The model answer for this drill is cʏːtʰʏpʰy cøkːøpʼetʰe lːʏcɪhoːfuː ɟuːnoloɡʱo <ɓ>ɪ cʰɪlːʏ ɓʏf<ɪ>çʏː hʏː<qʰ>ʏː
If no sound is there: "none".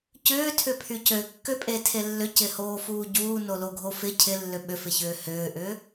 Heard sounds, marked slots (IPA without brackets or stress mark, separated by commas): f, ɪ, ʔ